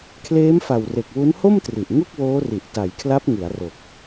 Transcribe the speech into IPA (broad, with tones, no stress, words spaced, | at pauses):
kʰleː˦˥mfa˨˩w re˨˩k̚ wu˦˥nho˥˩mtri˨˩ʔ ŋu˥˩k̚woː˦˥ri˨˩ʔ ta˩˦jkʰla˦˥p̚ŋɯ˩˦a̯ ro˨˩k̚